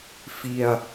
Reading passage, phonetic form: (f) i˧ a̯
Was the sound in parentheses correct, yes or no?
yes